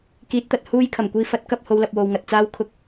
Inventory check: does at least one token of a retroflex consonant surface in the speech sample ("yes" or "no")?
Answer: no